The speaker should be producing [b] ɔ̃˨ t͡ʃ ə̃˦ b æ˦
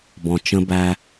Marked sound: correct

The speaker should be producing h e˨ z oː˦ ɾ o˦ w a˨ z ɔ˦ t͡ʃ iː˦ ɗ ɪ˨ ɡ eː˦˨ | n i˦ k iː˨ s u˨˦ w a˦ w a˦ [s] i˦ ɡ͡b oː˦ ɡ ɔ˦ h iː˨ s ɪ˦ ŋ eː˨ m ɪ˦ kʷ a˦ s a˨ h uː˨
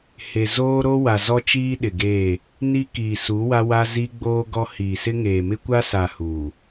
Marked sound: incorrect: z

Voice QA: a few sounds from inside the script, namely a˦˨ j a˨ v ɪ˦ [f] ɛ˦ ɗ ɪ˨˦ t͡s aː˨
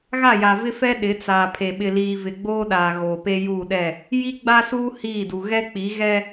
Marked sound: correct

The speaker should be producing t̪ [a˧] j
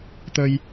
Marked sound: incorrect: ə˧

